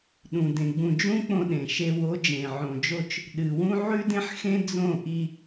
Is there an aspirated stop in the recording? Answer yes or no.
no